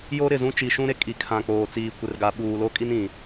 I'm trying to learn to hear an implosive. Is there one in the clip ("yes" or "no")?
yes